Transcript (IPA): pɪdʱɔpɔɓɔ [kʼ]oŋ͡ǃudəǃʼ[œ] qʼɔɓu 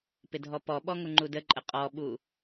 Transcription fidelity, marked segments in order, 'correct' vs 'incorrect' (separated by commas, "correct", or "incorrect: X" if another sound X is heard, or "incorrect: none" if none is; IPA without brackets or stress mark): incorrect: ŋ, incorrect: ə